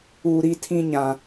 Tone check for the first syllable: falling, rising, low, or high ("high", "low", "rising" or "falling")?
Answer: low